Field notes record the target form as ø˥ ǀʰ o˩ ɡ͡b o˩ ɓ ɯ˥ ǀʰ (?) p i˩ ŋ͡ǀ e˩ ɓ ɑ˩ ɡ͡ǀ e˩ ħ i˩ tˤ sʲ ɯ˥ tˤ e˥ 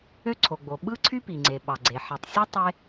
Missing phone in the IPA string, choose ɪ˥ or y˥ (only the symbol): y˥